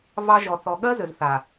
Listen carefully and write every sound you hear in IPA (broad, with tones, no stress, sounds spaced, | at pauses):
v ɑ˦ ʒ ɔ˨ θ ɔ˨ ɠ ɜ˦ z ʏ˨ z θ a˨